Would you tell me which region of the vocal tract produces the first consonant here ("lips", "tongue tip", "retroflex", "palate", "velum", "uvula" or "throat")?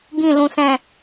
velum